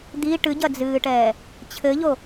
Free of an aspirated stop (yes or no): no